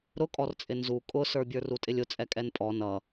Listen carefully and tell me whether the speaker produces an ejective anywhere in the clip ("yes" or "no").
yes